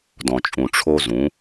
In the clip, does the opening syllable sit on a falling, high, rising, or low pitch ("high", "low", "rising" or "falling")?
low